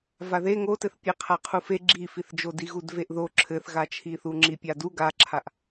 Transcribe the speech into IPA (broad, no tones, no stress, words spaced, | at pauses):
vaðe ŋotɘθpʲe qʰaqʰufe ɡ͡ǁifiθd͡ʒo diɣudveʔðo ǁʰɘθɣat͡ʃʰiθu ŋ͡ǁipʲadu ɡaǁʰaʔ